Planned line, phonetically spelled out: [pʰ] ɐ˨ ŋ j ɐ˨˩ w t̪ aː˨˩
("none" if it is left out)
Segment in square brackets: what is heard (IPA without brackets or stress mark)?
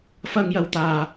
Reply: f